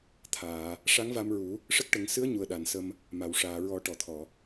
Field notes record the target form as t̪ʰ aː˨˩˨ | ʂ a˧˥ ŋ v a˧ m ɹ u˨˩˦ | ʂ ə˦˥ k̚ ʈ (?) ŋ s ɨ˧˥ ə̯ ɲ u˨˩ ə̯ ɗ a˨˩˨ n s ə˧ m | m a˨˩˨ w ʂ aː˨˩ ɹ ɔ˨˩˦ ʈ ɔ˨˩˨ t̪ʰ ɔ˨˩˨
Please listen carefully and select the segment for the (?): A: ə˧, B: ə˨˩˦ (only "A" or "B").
B